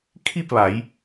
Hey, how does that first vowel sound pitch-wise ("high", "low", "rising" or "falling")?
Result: falling